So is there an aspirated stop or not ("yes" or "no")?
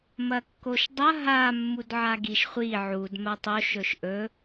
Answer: no